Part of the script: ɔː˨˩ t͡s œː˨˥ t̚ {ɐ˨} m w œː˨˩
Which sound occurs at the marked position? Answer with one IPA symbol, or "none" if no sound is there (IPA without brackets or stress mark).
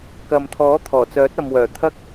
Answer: ɐ˨